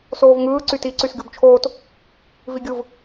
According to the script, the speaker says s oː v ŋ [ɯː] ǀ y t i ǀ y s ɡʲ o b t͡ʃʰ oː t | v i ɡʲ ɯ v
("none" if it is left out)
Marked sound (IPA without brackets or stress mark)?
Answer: ɯː